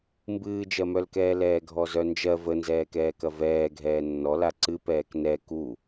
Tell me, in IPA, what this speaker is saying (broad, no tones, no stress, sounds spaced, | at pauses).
m b ɨː d͡ʒ ɜ m œ l k ɛː l ɛː ɡʱ ɔ z œ n d͡ʒ ɜ v ə n z ɛː k ɛː k ɐ v ɛː ɡʱ ɛː nː ɔ l a ǀ ɨ p ɛː k n ɛ k u